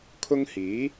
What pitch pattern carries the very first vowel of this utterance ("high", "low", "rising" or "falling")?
high